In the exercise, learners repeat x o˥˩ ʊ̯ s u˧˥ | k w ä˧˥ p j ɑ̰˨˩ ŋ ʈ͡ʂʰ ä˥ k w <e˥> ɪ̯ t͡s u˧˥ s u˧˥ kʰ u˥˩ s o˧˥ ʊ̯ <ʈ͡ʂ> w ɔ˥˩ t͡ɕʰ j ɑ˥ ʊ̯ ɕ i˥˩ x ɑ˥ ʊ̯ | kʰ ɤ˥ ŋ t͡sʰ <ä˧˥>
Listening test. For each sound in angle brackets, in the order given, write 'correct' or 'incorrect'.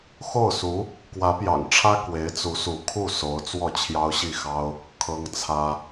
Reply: incorrect: e˧˥, incorrect: t͡s, incorrect: ä˥

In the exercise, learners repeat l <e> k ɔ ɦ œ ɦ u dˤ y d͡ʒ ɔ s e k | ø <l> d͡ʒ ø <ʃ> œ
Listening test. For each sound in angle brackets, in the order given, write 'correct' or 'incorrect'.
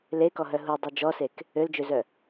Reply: correct, correct, incorrect: z

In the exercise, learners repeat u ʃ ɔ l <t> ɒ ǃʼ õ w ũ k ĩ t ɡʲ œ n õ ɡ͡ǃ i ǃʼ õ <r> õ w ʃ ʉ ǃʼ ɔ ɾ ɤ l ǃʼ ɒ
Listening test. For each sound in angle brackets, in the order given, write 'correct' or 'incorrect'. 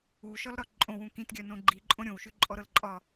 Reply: incorrect: ɾ, incorrect: ɾʲ

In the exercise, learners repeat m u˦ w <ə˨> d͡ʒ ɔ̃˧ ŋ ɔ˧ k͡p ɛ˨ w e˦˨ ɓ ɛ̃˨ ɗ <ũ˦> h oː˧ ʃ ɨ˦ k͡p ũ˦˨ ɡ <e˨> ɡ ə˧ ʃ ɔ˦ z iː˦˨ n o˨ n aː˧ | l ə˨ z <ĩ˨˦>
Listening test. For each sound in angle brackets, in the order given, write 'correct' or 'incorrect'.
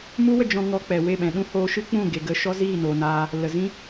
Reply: incorrect: ə˧, correct, correct, incorrect: ĩ˦

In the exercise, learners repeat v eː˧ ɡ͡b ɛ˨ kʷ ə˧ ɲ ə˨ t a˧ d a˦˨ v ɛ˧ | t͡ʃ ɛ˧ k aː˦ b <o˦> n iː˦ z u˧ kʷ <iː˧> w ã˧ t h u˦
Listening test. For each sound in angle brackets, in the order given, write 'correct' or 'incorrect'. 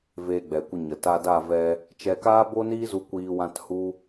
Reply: correct, correct

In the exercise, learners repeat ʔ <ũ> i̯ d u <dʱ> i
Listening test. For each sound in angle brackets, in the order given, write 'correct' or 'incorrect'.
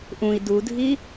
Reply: correct, correct

